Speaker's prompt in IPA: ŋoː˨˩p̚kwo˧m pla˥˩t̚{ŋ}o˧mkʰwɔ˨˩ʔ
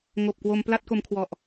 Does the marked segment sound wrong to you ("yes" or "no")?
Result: yes